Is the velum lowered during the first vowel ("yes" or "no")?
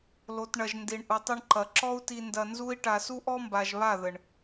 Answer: no